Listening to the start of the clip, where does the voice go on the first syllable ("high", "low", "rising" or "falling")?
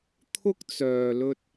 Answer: high